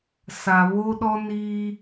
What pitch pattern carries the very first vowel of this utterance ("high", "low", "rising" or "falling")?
low